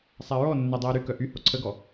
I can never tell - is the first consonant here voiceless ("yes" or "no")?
yes